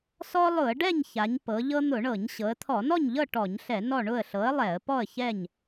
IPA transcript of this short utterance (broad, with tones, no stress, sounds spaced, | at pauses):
s ɔ˦ lˠ ʊ˧˩˧ ə̯ ɖ ɛ˥˨ ɲ ç a˩˧ ɲ p ɤ˩˧ ʎ ɤ˦ n̪ ʊ˧˩˧ ɳ ɤ˧˩˧ ɲ ɕ ɤ˩˧ ə̯ t̪ʰ ɔ˧˩˧ n ɔ˥˨ ɲ ʎ ɤ˥˨ ʈ ɔ˧˩˧ ɲ ɬ ɛ˧˩˧ n ɔ˥˨ ɳ ʊ˥˨ ə̯ ɬ ɤ˨˥ ə̯ lˠ ɛ˧˩˧ ə̯ p ɔ˥˨ ə̯ ç ɛ˥˨ ɲ